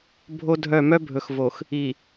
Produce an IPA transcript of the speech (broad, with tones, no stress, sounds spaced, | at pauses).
bʱ o˦ dʱ œ˦˨ m œ˦ bʱ ɵ˨ x v o˨ x | i˨